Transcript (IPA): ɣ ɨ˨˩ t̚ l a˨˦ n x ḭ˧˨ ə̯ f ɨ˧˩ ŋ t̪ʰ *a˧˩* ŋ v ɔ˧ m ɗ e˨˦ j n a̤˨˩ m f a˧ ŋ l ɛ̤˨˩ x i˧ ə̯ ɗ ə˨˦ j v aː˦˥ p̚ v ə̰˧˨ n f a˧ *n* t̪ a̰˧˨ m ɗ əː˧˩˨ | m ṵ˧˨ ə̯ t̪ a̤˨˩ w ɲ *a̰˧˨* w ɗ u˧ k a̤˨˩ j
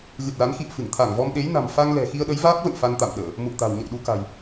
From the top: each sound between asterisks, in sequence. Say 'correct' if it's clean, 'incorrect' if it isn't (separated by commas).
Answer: correct, correct, incorrect